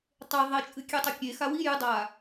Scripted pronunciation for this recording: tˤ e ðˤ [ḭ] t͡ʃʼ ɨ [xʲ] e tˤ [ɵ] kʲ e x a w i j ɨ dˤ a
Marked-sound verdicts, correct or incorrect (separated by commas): incorrect, incorrect, correct